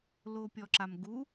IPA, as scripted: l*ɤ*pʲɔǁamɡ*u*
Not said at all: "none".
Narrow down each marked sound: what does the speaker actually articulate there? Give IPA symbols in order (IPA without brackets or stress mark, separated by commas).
o, u